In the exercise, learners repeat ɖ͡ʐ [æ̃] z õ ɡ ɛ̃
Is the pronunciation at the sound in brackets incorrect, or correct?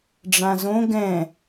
incorrect